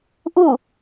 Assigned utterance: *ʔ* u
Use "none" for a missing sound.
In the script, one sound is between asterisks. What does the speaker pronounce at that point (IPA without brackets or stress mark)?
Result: ʔ